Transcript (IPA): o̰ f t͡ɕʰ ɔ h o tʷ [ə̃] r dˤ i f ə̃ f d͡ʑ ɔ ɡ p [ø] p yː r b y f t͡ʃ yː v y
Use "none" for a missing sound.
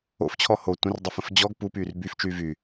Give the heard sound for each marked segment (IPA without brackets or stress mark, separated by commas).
ə̃, u